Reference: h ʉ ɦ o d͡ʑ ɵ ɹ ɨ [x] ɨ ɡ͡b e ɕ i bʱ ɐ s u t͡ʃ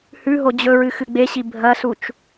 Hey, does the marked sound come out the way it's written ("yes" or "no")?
yes